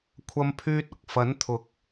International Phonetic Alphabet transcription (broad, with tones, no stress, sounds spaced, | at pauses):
kʷʰ ɐ˥ m pʰ yː˥ t̚ ʊ˨ k̚ f ɐ˨˥ n t̪ʰ ʊ˨ k̚